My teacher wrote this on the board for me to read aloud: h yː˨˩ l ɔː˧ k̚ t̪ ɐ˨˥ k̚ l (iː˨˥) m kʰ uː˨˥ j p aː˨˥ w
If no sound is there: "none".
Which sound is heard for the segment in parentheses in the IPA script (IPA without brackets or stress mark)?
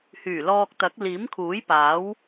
iː˨˥